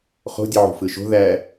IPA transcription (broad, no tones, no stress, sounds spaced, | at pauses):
χ o̤ dʲ ɯ ʕ ṳ f ɯ ʃ o̤ ð æ